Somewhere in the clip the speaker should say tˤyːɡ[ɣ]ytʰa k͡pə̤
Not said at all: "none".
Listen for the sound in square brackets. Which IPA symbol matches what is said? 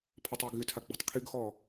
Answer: ɣ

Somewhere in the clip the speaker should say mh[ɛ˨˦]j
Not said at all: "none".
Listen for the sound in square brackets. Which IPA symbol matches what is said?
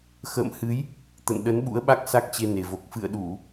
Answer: ɨ˨˦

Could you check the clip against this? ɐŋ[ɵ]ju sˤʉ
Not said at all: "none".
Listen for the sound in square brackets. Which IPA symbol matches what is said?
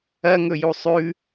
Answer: ɵ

